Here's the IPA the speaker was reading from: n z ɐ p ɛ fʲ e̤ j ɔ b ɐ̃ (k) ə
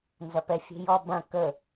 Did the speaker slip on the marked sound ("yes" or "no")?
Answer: no